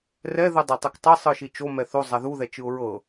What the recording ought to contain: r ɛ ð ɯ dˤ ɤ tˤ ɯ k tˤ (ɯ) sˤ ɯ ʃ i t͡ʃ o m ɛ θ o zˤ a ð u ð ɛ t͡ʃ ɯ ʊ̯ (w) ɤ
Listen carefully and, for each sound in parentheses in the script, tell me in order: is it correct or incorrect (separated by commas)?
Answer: incorrect, incorrect